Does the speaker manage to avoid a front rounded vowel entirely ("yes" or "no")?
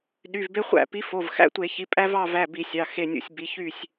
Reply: no